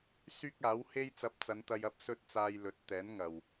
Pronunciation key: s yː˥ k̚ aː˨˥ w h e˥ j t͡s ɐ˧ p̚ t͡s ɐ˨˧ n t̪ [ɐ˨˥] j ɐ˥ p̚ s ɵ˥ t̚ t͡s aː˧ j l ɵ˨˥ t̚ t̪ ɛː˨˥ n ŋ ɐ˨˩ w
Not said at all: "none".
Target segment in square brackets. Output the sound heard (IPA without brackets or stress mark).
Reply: ɐ˧